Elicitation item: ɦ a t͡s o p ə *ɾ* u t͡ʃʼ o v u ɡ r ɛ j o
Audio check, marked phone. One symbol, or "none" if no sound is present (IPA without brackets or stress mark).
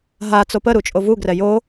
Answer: ɾ